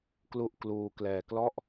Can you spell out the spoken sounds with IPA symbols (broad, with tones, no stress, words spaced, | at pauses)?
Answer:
klu˥˩ʔ kluː˧ klɛː˧klɔ˥˩ʔ